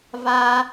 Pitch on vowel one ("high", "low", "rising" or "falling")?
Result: high